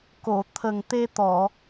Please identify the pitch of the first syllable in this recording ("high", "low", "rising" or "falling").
low